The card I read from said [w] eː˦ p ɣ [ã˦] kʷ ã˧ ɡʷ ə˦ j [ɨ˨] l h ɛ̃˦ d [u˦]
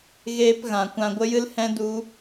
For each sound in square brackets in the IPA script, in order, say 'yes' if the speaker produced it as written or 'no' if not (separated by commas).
no, no, no, yes